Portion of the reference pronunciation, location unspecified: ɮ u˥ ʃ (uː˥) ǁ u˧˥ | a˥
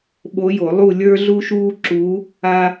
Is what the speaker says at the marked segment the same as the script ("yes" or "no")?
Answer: yes